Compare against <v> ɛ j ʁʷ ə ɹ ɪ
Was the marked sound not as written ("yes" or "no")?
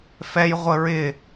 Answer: yes